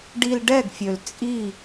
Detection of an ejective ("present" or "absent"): present